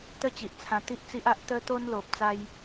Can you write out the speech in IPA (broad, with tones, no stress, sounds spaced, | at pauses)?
t̪ ə˥˧ t͡ɕ i˨ ʔ t͡sʰ ã˧ t̪ i˦ ʔ t͡s i˦ ʔ a˦ ʔ t̪ ə˦ t̪ o˦ n l o˨ p̚ t͡s a˦ j